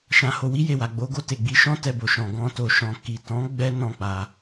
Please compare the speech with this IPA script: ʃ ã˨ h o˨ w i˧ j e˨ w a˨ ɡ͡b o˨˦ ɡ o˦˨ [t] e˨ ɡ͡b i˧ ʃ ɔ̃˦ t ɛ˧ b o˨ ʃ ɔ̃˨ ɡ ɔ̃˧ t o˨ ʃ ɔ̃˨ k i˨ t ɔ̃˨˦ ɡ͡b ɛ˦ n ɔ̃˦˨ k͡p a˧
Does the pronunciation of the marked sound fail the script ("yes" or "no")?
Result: no